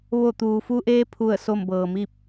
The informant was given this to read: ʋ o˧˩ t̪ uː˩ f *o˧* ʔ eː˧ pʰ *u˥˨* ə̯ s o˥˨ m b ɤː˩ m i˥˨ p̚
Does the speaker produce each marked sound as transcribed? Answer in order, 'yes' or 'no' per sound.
no, yes

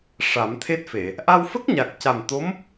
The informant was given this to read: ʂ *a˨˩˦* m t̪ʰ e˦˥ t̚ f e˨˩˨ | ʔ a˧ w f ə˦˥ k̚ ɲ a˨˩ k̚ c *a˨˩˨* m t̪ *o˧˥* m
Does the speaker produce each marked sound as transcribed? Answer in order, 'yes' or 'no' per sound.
yes, no, yes

